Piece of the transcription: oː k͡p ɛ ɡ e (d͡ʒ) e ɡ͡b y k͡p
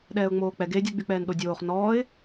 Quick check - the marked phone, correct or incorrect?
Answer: incorrect